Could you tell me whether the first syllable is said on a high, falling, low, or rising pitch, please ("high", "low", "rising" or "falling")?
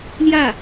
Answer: falling